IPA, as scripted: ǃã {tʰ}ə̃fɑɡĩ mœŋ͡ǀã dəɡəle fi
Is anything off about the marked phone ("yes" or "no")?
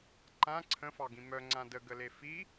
yes